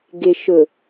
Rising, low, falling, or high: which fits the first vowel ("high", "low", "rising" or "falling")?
low